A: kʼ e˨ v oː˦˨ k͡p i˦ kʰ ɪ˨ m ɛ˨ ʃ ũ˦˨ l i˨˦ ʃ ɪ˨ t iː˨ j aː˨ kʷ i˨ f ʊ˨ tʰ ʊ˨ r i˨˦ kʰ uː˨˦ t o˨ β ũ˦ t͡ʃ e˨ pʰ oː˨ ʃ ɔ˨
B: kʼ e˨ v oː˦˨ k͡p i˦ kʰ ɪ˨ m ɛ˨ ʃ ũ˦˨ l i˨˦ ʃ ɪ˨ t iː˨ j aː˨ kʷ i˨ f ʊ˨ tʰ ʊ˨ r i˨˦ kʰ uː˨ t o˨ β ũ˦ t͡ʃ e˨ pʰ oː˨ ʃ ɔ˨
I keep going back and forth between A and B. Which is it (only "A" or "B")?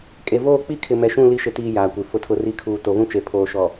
B